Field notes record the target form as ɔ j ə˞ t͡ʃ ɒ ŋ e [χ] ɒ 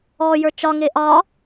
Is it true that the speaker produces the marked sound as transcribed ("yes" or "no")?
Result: no